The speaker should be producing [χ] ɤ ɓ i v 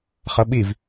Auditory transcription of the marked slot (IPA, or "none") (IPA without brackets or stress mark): χ